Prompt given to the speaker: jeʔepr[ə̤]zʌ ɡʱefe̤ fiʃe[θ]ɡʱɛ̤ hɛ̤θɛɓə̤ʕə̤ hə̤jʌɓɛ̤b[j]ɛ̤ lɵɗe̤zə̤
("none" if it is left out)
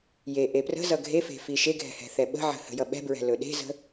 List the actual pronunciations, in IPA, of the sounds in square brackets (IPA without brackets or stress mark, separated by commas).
ə̤, none, ɹ